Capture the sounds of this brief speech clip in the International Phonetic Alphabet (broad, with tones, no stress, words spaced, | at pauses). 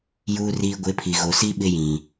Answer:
juː˨riː˨ ɡʷɪ˨˦pʰi˨ ɣo˨si˦ ɓɪ˦jĩ˨